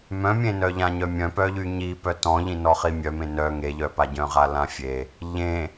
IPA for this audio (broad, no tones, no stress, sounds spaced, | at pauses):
m œ̃ mʲ ẽ n œ ʎ ã ɲ œ mʲ œ̃ p œ ʎ y ɲ i p œ t ɔ̃ ʎ ĩ n ɔ χ i mʲ œ m ẽ n œ ŋ e ʎ œ p a ɟ œ̃ ʁ a l ã fʲ e | ʎ ẽ